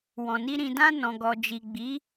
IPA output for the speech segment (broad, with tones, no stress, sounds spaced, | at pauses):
w ɔ̃˨ n i˧ ɾ ĩ˨ d ã˧ n ɔ̃˨ ɡ ɔ˨ d͡ʒ i˨ ɡ͡b i˨˦